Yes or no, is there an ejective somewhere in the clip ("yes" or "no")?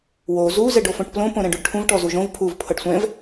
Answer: no